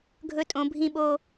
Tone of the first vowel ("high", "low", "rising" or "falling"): high